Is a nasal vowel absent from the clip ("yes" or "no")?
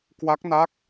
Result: yes